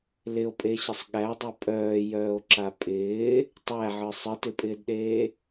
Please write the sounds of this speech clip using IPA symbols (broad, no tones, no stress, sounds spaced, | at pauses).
l ɪ o̯ pʼ e ɕ ɪ sˤ ɠ æ dˤ ɯ pʼ œː j œː o̯ ǁ a pʼ ɪː | tˤ æ ʕ ɯ sˤ ɪ t ɪ pʼ ɪː d ɗ eː